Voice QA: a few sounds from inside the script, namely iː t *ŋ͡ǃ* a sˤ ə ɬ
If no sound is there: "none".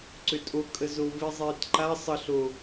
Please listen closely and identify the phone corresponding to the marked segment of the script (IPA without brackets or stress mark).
ǃ